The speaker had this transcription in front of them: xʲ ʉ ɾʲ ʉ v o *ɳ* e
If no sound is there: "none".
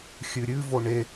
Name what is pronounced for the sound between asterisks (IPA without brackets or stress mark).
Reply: ɳ